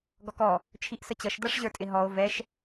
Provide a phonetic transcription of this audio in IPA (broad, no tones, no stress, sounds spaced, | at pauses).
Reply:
ɡ ɔ k ɔ | t͡ʃʰ i ʔ s ə t͡ɕ ʌ ʃ d ʌ ʂ ʑ ə˞ tʼ ɪ ɦ ɔ o̯ v ɛ ʃ